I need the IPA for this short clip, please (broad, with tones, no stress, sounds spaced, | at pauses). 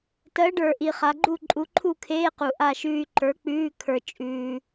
t ɜ˨˥ ɖ ə˞˨˩ ʔ i˨˩ χ a˩˧ ɡ͡ǃ u˥˨ ǃʼ u˨˥ ǃʰ u˥˨ kʰ eː˧˥˧ q u˨˩ ʔ a˥˨ ʃ ʉː˧ y̯ ǃ ə˞˨˥ k͡p ʉː˧˥˧ kʰ ə˞˧ t͡ʃʼ ʉː˧